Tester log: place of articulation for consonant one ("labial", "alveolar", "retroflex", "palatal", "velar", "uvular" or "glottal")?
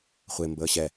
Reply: uvular